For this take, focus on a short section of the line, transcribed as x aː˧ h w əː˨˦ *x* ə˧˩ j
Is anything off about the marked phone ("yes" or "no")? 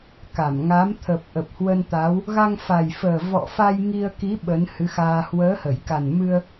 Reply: yes